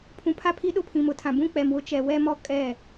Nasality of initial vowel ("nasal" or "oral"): nasal